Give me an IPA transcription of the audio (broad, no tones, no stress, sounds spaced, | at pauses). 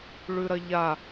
ɭ ʉ ɾ ɐ ʎ a